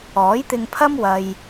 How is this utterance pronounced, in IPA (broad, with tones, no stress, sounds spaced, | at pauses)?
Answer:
ɔː˨˥ j t̪ ɪ˧ ŋ pʰ ɐ˥ m w ɐ˨ j